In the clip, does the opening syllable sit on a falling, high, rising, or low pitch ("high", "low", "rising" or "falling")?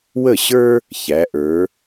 falling